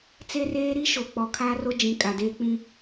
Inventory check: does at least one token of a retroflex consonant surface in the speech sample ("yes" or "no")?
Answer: no